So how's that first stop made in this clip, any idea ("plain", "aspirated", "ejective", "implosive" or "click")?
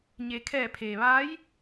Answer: aspirated